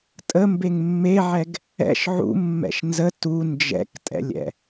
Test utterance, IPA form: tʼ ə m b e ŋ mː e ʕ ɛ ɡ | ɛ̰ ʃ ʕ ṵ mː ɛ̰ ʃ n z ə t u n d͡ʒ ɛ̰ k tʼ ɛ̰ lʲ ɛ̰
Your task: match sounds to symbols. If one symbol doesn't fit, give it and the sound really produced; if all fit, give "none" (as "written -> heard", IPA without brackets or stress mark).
none